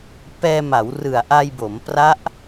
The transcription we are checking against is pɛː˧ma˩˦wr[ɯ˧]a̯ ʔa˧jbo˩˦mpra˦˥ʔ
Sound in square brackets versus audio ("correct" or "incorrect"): incorrect